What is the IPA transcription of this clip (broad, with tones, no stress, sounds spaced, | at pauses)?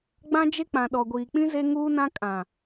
ɡ͡b ã˦ d͡ʒ e˦ k͡p ã˨ ɗ ɔ˨ ɡʷ iː˨ k͡p ĩ˦ z e˦ ŋ uː˦ n ã˦ kʼ ã˨